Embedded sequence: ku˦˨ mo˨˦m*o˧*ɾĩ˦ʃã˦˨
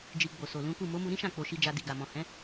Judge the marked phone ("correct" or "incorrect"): incorrect